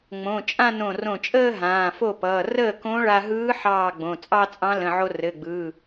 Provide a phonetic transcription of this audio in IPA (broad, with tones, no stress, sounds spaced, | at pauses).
ŋ͡m õ˩˧˩ t͡ʃʼ ã˥˧ n õ˧˩ r õ˧˩ t͡ʃʼ əː˥˧ ɦ ãː˩˧˩ f o˥˩ p ʌː˩˧˩ r əː˥˩ k õ˧˥ ɭ a˧ ɦ ɯː˧˥ ħ ɑː˥˩ ɡ͡b õ˩˧˩ t͡sʼ ɑ˥˧ t͡sʼ ɑ̃˧˥ l ə̃˩˧˩ ʕ o˧ r ɘ˩˧˩ ɡ͡b ɯː˩˧˩